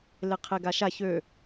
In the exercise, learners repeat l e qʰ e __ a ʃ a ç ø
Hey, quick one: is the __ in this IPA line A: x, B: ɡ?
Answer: B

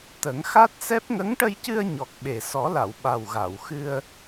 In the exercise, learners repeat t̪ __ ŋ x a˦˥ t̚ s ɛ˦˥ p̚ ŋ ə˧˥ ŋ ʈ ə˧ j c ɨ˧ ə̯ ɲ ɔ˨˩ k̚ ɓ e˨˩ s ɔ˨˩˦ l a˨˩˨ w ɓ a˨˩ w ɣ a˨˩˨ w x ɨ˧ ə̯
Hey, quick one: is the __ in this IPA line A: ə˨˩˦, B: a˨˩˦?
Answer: A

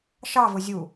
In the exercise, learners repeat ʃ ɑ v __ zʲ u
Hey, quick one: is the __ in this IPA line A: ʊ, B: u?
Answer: A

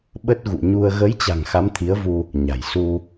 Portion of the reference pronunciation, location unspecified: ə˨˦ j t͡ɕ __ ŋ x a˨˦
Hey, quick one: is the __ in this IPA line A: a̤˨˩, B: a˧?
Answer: A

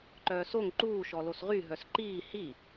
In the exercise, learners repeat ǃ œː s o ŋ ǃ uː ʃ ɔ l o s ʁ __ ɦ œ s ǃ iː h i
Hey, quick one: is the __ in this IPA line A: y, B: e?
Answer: A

